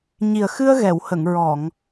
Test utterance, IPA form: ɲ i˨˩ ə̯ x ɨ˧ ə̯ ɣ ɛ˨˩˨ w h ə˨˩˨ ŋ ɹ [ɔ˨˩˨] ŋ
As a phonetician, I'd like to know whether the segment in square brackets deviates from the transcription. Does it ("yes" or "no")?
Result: no